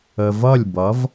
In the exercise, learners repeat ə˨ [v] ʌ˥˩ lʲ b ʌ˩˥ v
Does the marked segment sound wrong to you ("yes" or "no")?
no